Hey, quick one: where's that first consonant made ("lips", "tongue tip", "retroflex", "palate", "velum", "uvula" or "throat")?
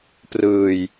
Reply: lips